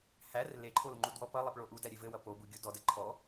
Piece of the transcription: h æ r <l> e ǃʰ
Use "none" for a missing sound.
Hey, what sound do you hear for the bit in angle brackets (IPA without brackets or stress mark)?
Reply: l